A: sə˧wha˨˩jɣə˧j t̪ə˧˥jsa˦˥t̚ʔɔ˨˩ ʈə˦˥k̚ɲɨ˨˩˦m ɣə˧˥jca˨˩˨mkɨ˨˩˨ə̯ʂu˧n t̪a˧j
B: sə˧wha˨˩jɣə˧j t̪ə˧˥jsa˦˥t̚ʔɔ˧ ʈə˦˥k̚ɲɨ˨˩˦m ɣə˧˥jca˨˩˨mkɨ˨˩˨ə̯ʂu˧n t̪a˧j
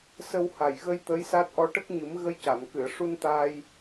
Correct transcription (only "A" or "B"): B